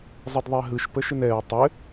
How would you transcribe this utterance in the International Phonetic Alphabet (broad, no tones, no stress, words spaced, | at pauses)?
zˤədðˤɛɦɯʃ pəʃɘnɛɹ tˤɘ